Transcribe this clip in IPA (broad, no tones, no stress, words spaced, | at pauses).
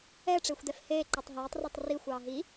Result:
ɛ ʈ͡ʂexʷdɛfheː ǃɑtˤɦeːtˤ retˤri xʷɑːɦi